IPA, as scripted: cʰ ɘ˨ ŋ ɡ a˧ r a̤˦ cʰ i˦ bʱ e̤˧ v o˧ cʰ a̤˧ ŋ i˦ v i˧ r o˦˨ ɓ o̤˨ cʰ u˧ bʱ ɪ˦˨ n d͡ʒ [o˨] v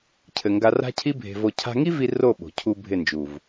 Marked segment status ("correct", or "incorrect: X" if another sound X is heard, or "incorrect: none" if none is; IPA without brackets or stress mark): incorrect: u˨